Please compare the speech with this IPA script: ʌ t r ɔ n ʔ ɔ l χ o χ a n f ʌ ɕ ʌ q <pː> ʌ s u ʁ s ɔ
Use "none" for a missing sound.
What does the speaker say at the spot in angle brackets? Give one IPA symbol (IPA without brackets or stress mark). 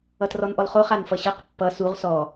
pː